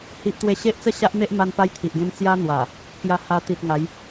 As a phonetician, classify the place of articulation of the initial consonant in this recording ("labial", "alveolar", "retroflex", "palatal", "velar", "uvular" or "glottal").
glottal